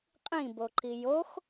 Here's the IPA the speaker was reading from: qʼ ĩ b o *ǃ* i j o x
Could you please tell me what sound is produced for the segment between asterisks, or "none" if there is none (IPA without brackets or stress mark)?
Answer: ǃ